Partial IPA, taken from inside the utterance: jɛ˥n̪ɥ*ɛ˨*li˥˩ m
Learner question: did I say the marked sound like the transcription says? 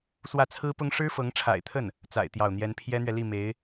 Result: yes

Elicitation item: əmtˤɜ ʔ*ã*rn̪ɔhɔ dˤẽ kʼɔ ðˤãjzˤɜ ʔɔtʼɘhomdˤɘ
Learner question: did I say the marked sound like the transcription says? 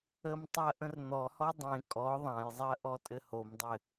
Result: no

